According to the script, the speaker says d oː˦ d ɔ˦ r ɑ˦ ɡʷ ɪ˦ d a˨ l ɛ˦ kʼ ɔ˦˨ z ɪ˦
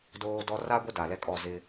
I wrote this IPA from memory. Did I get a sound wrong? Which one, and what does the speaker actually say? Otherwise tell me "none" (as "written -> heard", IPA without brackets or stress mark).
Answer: ɑ˦ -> a˦